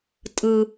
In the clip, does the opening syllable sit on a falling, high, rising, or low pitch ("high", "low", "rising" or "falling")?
high